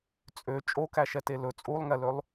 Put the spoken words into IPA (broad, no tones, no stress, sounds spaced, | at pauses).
t͡sʼ ø t͡ʃʼ o k æ ʃ ɛ t e l ɵ t͡sʼ u lˠ ŋ ɛ l ø lˠ